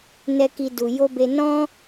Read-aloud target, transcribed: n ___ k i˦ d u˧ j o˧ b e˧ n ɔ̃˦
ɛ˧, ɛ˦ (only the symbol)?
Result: ɛ˦